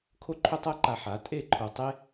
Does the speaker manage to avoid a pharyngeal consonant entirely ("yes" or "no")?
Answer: no